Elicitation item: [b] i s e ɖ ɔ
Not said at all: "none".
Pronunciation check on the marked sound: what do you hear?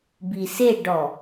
b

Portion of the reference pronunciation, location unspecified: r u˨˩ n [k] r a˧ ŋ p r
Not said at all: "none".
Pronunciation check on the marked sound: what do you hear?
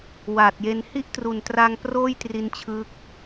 t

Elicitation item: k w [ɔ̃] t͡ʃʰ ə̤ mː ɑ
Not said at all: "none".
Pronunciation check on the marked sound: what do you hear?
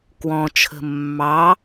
ɔ̃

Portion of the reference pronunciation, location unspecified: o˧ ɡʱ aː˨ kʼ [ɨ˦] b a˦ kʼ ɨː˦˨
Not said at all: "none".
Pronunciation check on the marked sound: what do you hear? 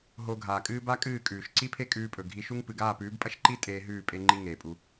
ɨː˦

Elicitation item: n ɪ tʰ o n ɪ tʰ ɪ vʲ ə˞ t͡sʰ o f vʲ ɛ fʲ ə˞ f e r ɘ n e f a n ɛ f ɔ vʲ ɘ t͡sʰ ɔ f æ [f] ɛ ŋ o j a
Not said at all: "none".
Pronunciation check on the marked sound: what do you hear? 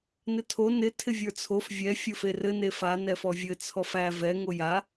v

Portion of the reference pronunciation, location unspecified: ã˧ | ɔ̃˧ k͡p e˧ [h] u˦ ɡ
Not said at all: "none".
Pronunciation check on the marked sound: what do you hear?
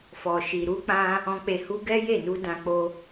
h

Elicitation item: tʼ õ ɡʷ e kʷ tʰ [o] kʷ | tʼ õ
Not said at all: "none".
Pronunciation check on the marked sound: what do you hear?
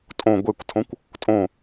õ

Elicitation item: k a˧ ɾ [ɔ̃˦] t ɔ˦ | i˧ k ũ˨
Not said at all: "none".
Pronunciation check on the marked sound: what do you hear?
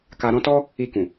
ɔ̃˦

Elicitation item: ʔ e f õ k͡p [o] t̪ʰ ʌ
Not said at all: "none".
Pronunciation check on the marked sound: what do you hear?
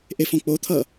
o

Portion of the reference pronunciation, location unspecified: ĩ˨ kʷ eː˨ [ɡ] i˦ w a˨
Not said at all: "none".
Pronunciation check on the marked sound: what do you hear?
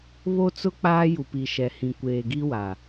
ɡ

